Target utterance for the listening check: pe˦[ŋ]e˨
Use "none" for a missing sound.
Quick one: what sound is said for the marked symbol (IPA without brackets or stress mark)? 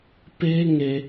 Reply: ŋ